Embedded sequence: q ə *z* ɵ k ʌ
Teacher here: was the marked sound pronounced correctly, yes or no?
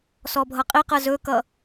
yes